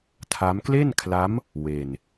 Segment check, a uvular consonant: absent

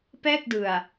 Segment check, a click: absent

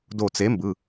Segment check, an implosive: absent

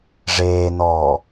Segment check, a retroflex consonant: present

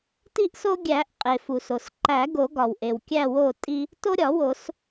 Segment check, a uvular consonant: present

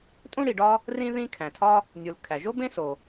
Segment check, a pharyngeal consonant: absent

